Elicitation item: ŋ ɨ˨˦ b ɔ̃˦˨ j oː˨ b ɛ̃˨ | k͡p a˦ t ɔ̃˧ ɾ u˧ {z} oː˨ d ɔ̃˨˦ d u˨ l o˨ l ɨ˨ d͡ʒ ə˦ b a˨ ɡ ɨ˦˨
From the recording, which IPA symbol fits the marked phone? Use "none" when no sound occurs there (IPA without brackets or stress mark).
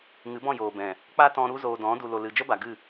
z